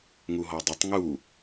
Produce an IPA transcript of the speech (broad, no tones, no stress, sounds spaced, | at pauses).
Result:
ŋ u ɦ ɔ dˤ ɪ tˤ ŋ u